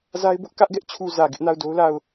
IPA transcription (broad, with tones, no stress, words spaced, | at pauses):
za˦ɪ̯bʊ˦ʔ kä˦ʔɡɛ˦ʔt͡ɕʰu˨ zä˨ɡɪ˦ʔna˦˨ʊ̯ do˦ʊ̯la˦˨ʊ̯